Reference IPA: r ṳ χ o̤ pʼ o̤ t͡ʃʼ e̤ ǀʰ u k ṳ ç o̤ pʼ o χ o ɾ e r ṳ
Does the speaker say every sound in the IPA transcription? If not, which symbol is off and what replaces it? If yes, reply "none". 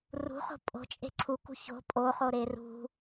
none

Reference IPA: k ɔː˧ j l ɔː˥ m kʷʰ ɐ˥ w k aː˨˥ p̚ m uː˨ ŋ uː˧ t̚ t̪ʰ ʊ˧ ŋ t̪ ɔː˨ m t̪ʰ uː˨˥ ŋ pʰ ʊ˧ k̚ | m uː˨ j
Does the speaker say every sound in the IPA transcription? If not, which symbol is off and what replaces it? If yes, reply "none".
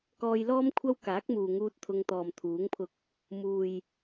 p̚ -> k̚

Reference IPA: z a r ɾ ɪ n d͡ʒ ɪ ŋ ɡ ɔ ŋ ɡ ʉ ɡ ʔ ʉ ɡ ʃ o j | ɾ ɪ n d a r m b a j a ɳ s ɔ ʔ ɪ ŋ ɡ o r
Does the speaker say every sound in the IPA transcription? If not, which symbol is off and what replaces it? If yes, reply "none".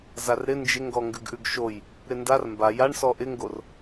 none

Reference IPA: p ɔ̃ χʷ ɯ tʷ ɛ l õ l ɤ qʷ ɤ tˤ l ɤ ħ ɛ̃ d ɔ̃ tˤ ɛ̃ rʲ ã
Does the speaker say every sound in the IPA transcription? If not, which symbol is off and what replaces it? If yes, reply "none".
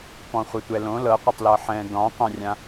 none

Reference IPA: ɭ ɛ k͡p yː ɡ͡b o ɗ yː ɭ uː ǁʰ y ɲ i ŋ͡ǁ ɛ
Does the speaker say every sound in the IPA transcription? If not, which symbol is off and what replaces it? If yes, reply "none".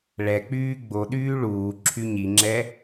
none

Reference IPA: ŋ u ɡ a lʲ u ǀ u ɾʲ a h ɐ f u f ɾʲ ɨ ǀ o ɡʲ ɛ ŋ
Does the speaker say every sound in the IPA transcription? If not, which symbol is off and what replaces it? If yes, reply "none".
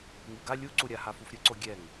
ɐ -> a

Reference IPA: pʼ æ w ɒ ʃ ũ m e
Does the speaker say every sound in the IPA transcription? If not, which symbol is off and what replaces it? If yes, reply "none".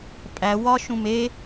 none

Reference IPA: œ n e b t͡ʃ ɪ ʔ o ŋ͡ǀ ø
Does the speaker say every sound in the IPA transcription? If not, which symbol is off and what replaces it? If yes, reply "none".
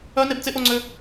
t͡ʃ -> t͡s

